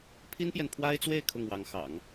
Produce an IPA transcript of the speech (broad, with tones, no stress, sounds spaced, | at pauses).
pʰ i˥ n p j ɛ˨ n pʰ w a˥ ɪ̯ t͡s w e˥˧ ɪ̯ kʰ ʊ˥˩ ŋ w ɑ˧˥ ŋ x ɑ̰˨˩˦ ŋ